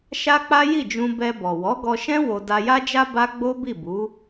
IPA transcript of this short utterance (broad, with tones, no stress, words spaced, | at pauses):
ʃa˦k͡pa˦ ji˦˨d͡ʒũ˧ bɛ˧bɔ˨ wɔ˨˦ɡɔ˧ʃɛ̃˦ wo˧ da˧ja˦d͡ʒa˦ ba˦ ɡ͡bo˦bi˦˨bu˨˦